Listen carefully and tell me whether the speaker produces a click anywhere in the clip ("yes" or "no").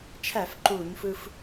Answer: yes